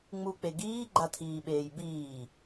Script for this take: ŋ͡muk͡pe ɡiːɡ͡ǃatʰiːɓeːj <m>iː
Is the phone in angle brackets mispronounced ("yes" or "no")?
yes